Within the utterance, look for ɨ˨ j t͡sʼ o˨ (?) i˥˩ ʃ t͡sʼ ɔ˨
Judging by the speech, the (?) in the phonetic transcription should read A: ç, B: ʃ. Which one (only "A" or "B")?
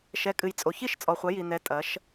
A